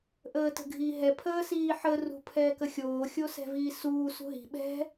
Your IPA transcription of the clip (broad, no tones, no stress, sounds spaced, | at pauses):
ʔ əː t ə̤ ɡʱ iː ɦ ɛ pʰ əː s iː ħ ə r ṳ pʰ ɛː k ə xʲ oː xʲ o s ɛ̤ v iː s uː s ṳ ɦ i̤ ɓ ɛ̤